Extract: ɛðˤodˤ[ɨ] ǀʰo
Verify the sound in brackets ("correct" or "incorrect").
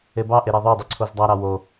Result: correct